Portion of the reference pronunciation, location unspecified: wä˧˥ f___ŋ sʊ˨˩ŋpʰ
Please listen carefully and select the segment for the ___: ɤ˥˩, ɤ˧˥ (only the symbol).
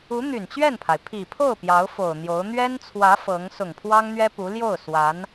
ɤ˧˥